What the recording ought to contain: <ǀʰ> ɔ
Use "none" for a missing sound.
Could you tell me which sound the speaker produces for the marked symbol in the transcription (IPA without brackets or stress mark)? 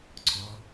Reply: ǀʰ